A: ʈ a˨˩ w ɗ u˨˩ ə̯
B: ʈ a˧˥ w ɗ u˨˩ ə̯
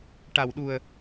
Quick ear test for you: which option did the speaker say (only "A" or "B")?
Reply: A